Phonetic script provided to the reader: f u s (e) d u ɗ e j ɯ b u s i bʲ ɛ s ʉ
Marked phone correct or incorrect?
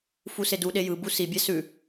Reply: correct